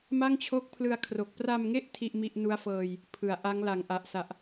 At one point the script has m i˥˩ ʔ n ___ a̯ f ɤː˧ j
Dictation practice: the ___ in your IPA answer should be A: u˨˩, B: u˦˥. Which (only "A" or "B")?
B